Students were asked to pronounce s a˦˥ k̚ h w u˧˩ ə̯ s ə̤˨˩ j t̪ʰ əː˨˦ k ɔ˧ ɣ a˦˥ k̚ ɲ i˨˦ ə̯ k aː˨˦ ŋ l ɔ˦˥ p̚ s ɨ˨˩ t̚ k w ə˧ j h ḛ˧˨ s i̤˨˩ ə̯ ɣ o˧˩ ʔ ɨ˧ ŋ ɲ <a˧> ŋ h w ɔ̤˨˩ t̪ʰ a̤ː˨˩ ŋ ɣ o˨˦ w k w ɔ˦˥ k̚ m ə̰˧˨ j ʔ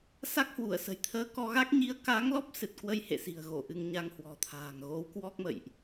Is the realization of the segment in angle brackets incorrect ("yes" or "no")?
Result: no